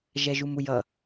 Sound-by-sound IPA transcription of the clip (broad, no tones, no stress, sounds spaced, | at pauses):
ʒ ɛ ʒ u m u j ʌ